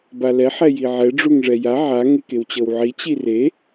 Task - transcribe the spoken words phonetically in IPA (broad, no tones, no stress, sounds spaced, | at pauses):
b a l ɛ ħ ɛ j i ʕ ɛ ɖ͡ʐ u ŋ ʐ ɛ j a ʕ a ŋ e k e w t͡ɕ ɤ w ʕ i t͡ɕ i r e